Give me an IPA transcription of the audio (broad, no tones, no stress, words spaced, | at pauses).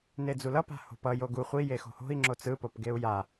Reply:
ned͡zulʌ pa̤ho̤pʌ joɡu χʷi jexo̤ho̤i̯ ŋ͡ǁot͡sɯ popɡeu̯ja